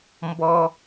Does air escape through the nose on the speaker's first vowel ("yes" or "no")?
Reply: no